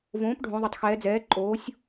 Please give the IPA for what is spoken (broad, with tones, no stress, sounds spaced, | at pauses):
v õː˩˥ p ɖʱ õ˩˧ ðˤ ə˩˥ tˤ x ɛː˩˧ d͡z ɛː˩˥ ǃʼ oː˩˥ sʲ